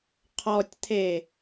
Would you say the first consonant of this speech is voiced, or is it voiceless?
voiceless